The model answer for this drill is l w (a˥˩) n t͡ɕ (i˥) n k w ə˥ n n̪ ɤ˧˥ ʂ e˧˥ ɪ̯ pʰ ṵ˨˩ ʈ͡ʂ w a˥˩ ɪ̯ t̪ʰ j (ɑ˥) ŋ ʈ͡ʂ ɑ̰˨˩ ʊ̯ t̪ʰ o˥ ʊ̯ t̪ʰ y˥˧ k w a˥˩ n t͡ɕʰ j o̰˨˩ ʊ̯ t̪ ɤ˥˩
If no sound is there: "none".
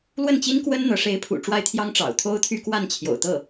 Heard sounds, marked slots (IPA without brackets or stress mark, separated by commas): ə˥˩, i˥, ɑ˥